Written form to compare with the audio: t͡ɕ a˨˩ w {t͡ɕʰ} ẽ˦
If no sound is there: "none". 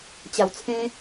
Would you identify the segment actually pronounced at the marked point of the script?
t͡sʰ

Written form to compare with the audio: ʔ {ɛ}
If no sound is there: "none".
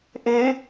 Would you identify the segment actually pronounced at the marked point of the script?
e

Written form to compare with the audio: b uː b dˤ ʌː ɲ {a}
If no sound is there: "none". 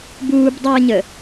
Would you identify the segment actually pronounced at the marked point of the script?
ə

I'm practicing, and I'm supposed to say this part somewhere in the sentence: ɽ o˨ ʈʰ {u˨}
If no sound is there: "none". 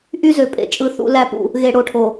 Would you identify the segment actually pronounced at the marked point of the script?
o˨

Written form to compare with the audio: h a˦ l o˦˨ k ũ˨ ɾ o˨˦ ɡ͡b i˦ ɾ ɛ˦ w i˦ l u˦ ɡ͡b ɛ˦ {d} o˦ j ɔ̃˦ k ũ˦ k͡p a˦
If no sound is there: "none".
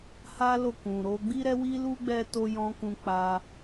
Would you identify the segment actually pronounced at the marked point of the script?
t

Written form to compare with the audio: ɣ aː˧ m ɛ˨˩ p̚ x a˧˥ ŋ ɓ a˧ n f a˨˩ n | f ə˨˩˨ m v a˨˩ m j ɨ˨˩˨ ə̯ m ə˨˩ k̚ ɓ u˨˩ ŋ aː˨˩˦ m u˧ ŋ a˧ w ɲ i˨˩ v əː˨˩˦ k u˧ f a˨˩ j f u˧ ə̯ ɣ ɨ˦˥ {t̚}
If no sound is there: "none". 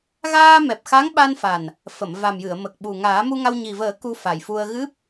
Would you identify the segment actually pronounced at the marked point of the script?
p̚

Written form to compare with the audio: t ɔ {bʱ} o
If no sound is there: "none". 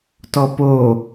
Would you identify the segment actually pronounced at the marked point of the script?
p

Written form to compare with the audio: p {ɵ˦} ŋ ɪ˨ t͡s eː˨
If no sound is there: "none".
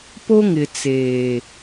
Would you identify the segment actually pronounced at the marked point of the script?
o˦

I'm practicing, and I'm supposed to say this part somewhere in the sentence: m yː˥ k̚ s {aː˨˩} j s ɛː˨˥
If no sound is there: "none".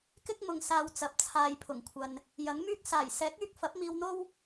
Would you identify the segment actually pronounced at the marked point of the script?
aː˨˩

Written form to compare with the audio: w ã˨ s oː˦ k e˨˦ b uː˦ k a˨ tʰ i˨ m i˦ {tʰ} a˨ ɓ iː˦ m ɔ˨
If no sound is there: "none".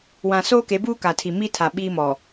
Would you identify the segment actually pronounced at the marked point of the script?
tʰ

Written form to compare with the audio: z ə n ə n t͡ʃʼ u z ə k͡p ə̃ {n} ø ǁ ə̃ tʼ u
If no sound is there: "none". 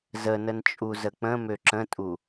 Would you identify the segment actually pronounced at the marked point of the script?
m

